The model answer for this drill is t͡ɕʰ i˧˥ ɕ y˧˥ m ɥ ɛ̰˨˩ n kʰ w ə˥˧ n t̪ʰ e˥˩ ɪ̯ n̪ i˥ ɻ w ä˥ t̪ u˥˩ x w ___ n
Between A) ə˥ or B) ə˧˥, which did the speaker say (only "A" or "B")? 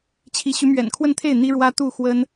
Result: A